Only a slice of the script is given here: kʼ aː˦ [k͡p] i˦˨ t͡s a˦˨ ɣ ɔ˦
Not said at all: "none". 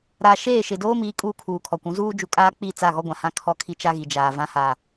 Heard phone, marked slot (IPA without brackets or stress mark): k͡p